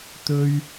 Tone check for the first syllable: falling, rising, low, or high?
high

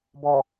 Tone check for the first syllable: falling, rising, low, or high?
low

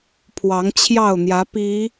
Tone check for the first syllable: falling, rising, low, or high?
rising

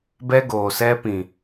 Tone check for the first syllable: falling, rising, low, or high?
high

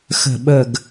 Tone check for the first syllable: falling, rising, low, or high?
low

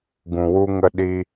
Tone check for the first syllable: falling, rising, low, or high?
low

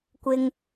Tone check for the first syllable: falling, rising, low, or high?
high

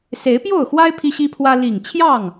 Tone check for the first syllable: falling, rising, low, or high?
rising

